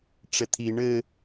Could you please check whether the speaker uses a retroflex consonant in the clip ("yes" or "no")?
yes